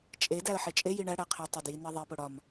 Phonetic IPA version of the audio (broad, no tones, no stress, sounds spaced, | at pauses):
t͡ʃʼ e d æ ə̯ ħ e t͡ʃʼ e j i ɳ æ ɽ æ qʰ e tˤ e d j i n e ðˤ e p o ɽ ɒ m